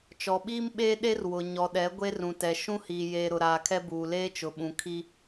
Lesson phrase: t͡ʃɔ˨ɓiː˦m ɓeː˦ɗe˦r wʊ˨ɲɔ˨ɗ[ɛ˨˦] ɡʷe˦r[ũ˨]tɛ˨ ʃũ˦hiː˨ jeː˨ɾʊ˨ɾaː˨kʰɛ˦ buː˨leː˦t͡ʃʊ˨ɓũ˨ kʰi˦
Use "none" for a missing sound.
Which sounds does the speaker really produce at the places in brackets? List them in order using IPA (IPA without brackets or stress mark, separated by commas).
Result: ɛ˨˦, ũ˨